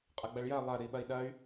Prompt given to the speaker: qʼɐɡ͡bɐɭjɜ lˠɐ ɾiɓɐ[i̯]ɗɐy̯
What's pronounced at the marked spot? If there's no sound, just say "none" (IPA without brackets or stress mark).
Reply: i̯